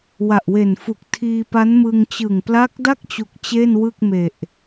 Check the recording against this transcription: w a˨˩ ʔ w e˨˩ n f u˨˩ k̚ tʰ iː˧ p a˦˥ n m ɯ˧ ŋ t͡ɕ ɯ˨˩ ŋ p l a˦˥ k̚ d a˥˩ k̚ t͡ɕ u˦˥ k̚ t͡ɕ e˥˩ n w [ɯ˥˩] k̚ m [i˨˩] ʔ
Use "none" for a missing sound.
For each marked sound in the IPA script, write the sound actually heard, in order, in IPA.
ɯ˥˩, e˨˩

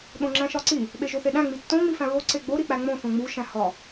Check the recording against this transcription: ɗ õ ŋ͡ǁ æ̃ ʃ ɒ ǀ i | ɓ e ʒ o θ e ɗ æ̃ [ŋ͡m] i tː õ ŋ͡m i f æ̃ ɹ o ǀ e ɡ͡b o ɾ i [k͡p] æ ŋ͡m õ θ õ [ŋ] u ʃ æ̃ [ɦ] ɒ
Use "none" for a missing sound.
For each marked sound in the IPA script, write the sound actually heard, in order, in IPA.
ŋ͡m, k͡p, ŋ͡m, h

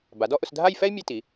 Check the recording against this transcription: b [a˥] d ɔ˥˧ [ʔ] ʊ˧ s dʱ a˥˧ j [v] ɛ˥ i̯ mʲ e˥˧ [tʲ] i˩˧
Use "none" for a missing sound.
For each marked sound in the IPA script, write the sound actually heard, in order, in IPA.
a˩˧, ʔ, f, t

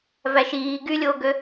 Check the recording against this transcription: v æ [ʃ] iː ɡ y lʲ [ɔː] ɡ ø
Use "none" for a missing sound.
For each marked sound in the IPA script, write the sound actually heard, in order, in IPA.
ʃ, oː

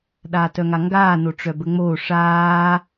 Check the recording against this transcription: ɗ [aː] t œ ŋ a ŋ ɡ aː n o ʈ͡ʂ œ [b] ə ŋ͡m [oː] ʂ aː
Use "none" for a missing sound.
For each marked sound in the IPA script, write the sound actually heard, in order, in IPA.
aː, b, oː

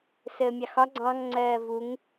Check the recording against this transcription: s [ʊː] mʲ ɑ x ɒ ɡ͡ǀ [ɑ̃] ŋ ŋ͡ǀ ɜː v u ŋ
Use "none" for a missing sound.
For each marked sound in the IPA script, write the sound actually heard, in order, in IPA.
əː, ɑ̃

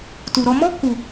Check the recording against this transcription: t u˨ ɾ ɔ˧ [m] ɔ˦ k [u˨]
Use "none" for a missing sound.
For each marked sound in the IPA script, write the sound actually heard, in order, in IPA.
m, u˨

